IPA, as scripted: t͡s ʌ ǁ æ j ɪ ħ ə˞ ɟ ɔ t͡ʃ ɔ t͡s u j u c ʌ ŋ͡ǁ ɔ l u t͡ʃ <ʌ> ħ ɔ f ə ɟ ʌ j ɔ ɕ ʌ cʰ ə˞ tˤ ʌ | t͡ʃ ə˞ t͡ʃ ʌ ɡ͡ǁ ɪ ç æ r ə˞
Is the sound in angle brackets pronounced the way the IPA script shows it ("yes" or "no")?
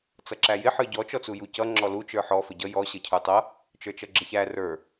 no